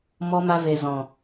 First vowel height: mid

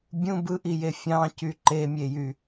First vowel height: high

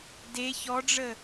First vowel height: mid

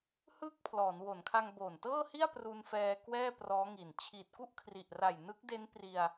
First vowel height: high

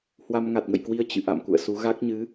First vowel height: low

